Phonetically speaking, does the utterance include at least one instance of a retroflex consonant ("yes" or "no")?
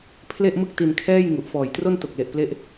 no